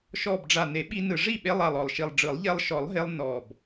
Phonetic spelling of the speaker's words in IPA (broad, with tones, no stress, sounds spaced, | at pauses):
ʃ ɔ˨˩ b ɖ͡ʐ a˨˩ n e˨˩˦ ɓ i˧ n ɯ˨˩ ʐ i˥˩ ɓ e˧ lˠ a˨˩ lˠ ɔ˨˩ lˠ ʃ i˨˩ lˠ ɖ͡ʐ ɯ˨˩˦ lˠ ʎ ɛ˧ lˠ ʃ ɔ˨˩˦ lˠ ɦ e˧ lˠ n ɔ˨˩ b